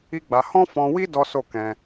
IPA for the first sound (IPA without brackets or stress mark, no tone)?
i